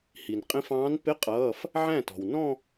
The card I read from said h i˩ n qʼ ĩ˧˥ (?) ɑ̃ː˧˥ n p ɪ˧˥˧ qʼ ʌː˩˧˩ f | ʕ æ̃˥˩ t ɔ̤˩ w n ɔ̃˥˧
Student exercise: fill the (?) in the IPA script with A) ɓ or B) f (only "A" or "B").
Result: B